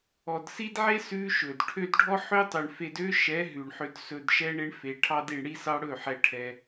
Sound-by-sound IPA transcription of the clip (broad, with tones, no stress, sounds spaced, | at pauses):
ɔ˨ d s i˦ d ʕ e˦ s ʉ˦ ʃ ɵ˨ d ʈʰ ø˧ d ɖʱ ɔ˦ ħ ø˦ tˤ ø˨ ɳ f e˧ d ø˦ ʃ ɛ˨˦ ɦ ʉ˨ ɳ ħ ø˧ d s ɵ˧ d ʃ ɛ˦ ɳ e˦ ɳ f e˨ ʈʰ ɑ˧ d i˨ ɳ ɽ i˧ s ɑ˧ ɽ ɵ˦˨ ħ ɛ˧ ʈʰ ɛ˧